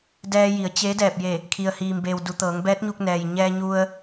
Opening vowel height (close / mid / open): mid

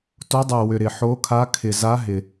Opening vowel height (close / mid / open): mid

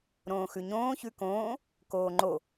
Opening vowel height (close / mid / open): mid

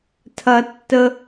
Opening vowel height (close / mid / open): open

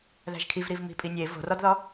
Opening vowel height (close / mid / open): open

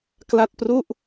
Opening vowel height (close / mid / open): open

